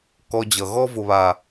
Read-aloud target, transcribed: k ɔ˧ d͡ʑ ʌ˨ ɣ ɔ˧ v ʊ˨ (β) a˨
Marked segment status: correct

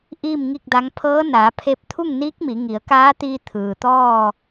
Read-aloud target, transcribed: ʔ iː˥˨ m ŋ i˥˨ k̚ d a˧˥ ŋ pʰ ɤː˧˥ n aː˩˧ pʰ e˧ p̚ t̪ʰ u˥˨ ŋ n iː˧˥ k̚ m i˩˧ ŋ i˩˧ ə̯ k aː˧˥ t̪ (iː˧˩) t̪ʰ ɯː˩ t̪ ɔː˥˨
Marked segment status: incorrect: iː˧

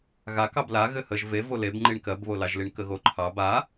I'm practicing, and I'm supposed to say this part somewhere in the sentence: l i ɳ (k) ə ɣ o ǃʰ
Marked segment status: correct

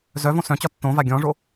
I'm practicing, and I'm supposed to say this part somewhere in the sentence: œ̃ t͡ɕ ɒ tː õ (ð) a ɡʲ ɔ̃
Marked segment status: incorrect: v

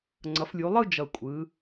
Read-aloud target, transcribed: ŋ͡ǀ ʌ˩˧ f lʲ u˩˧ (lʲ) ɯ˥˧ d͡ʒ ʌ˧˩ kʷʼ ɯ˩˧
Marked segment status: incorrect: lˠ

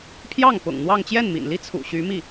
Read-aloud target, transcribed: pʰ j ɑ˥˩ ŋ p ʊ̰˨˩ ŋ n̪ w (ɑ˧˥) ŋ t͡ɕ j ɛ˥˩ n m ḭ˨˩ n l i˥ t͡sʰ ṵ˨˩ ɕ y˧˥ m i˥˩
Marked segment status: incorrect: ɑ˥˧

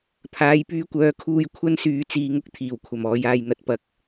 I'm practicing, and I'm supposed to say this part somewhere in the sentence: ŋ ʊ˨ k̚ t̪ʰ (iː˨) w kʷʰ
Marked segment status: incorrect: iː˨˩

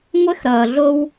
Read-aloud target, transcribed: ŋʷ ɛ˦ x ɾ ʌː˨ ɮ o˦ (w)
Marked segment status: correct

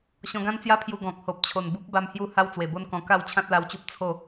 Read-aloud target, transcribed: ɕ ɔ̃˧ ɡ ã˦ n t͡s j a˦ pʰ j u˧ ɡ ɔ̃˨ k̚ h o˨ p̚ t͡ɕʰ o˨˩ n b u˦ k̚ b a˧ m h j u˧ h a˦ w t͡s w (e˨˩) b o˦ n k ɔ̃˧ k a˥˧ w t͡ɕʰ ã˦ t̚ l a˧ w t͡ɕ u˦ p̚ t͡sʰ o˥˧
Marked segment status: correct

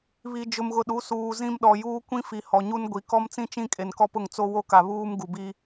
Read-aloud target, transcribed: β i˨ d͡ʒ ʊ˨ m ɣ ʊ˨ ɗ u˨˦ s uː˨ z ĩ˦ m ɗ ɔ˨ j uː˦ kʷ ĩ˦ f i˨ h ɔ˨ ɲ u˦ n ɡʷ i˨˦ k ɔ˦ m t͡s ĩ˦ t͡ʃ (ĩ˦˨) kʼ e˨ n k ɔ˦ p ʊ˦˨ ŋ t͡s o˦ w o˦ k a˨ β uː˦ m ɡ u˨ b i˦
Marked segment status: correct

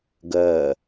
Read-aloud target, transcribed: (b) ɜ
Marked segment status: incorrect: ɡ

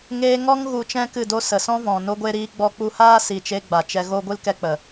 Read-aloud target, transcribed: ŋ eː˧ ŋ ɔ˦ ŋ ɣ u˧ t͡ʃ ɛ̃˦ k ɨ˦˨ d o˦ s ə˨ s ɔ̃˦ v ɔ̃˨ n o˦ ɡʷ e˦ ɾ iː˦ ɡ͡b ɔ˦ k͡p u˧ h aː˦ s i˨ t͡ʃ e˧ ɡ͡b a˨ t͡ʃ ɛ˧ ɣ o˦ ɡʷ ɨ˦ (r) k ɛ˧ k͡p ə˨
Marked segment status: incorrect: l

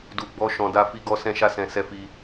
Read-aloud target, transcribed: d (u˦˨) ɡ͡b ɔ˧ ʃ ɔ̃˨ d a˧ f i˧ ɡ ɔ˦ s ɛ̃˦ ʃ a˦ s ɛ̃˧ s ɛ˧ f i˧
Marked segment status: incorrect: u˨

